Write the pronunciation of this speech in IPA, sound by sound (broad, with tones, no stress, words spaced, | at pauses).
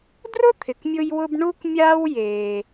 drʊ˥t̪ʰɪ˩kmʲʊ˧jwʊ˧b ɳu˥k mʲaː˥w jeː˩